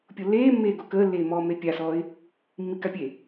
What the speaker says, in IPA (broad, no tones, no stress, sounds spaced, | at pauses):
pʲ o lː eː mː eː ɡ o k əː lː eː m ɔː m e pʲ a s ɔː ɪ̯ | mː i k a pʲ e